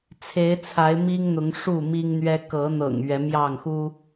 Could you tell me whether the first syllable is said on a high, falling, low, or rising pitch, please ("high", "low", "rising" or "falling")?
rising